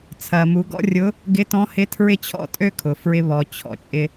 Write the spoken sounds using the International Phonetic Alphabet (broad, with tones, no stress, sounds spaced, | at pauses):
t͡sʰ ɐ˩ m u˩˧ ɡ ɔ̰˥ rʲ ʊ˧˥ | ɡ ɪ˧˥ t ɔ̃˧˥ h ɪ˧˥ tʰ ɹ ɪ˥ t͡ɕʰ ɔ̰˥ tʼ ø˥ kʰ ʊ˩ f ɹ ɪ˧ β ɔ˩ t͡ɕʰ ɔ̰˩˧ t͡ʃʼ ɪ˧